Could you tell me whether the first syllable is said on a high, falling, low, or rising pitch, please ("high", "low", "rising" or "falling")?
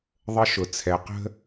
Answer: high